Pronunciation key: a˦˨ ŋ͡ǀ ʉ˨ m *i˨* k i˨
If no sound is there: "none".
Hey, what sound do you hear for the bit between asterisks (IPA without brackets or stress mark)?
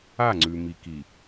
i˨